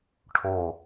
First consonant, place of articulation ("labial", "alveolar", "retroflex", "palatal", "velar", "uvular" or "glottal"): retroflex